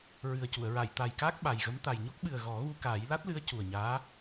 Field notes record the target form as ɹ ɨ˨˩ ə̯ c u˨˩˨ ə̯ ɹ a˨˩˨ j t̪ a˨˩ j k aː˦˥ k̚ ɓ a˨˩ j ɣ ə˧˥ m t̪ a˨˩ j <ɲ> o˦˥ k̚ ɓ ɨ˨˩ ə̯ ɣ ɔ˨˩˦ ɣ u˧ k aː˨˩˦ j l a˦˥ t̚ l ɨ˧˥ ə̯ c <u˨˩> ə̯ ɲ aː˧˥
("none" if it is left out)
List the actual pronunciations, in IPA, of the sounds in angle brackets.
ɲ, u˨˩

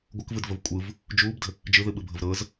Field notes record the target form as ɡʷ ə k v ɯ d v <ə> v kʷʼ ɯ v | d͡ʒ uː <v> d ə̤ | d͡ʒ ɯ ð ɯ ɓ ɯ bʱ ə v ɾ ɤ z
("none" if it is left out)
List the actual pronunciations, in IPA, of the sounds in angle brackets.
ə, b

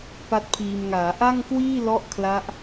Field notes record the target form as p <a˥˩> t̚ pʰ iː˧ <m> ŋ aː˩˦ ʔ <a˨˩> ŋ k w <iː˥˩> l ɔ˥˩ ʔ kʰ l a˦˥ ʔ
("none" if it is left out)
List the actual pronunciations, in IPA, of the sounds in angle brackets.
a˥˩, m, a˥˩, iː˥˩

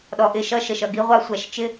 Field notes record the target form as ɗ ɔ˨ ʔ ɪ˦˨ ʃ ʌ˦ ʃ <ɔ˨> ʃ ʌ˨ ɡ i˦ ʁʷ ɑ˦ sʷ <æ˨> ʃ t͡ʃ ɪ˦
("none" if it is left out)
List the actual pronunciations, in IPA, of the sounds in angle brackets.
ə˨, æ˨

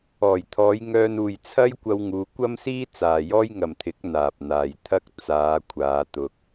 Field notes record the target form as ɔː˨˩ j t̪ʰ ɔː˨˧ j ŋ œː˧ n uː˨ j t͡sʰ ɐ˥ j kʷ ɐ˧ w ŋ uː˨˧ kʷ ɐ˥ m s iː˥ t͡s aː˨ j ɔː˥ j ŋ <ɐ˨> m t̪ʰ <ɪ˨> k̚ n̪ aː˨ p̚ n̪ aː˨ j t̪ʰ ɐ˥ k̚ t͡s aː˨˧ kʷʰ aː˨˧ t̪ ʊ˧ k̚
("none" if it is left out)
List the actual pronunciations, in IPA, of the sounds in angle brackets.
ɐ˨, ɪ˨˥

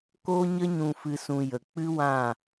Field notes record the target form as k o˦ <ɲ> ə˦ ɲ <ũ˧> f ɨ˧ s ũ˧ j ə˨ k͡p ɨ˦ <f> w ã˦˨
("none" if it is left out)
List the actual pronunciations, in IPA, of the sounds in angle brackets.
ɲ, ũ˧, none

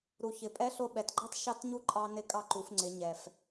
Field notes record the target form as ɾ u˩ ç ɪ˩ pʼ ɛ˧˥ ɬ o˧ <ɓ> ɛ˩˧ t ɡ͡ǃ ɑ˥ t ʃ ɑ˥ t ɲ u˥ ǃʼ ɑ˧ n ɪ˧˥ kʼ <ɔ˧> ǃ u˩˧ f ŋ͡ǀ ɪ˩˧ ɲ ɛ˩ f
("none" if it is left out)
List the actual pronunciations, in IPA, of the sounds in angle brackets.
ɓ, ɑ˧

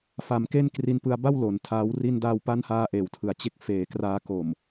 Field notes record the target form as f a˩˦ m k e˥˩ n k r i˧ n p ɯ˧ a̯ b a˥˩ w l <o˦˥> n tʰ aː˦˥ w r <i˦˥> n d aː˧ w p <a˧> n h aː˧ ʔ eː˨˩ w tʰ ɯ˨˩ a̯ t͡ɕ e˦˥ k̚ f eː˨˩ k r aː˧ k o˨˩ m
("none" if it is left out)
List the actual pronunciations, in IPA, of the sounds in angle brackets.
o˩˦, i˧, a˦˥

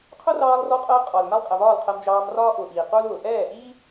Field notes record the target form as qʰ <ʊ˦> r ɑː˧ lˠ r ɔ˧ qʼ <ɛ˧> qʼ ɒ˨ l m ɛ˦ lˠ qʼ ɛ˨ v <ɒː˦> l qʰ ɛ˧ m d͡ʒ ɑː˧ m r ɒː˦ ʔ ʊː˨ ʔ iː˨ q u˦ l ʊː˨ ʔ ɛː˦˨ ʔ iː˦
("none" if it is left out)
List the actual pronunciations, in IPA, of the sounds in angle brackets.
ʊ˦, ɜ˧, ɒː˦˨

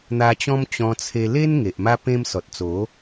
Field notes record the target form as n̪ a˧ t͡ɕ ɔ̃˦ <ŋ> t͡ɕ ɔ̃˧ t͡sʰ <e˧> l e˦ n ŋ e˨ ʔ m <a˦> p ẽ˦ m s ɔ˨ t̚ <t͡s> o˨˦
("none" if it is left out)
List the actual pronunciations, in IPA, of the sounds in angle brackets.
m, e˧, a˦, t͡s

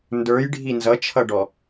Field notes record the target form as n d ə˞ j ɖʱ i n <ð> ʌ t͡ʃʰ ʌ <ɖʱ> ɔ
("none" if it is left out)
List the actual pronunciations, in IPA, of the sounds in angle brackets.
z, ɖ

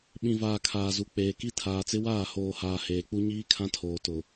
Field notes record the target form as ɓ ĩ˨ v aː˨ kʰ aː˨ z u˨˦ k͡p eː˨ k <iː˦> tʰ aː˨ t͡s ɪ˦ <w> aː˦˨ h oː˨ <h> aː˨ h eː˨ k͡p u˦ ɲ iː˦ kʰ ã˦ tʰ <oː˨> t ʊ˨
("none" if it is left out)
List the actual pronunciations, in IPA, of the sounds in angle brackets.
i˦, w, h, oː˨

